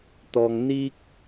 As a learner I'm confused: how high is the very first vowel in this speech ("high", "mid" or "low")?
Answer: mid